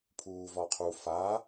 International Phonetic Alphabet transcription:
pʰ uː v ɒ qʰ u f a

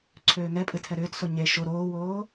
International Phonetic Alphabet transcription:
ǀʰ øː ŋ ɛ pʼ ɨ tʰ ɛ ɾ ʏː t s o ɲ e ʃ o ɾ oː w oː

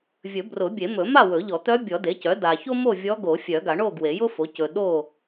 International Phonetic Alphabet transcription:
vʲ ɵ˨˩˦ b r ʊ˨˩˦ bʲ e˨˩˦ m ɵ˨˩˦ m a˥˨ w ɵ˨˩˦ ʎ ɔ˨˩˦ t̪ œ˧˥ bʲ ɔ˨˩˦ d e˩˥ c œ˩˥ d a˨ ç o˥ m o˥˨ vʲ ɔ˧˥ ɡ o˨˩˦ fʲ œ˨˩˦ ɡ a˨˩˦ ɳ o˥˨ ɡ w e˨˩˦ j ʊ˥ f o˩˥ c ɵ˨ ɗ o˥˨

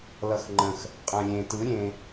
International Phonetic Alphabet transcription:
l ʌ x ŋ͡ǃ ə̃ x | qʼ ã lʲ ẽ t ɯ ɾʲ ẽ

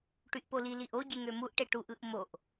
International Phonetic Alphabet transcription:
ʈ y ʔ p o l i l i ʔ o ɟ e ŋ ø m u ʔ ʈ e ʈ u ʔ ɯ ʔ m o ʔ

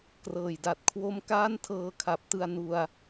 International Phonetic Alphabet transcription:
k r ɤː˨˩ j d a˨˩ t̚ kʰ w o˦˥ m k aː˥˩ n tʰ ɤː˧ kʰ a˨˩ p̚ t ɯ˧ a̯ n u˧ a̯

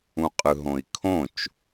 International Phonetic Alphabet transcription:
ũ qʼ ɯ ɦ õ i̯ kʰ õ t͡ʃ

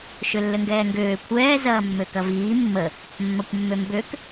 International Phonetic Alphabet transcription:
ʃ ø lː ɘ ŋ ɡ ɛː ŋ ɡ øː kʷʰ ɛː z ɐː mː ø k ɐ v iː mː ə | mː ɐ kʷ mː ø m b ø k

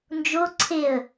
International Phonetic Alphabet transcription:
n d͡ʒ o ǀʰ e ə̯

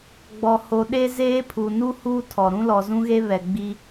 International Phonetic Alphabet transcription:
ɡ͡b ɔ˨ h o˨ ɗ e˦ z eː˦ pʰ u˨ n u˦ h uː˦ tʰ ɔ˨ ɾ ũ˦ l ɔ˨ z ũ˦ ɣ e˦ β ɛ˨ ɡ͡b i˦

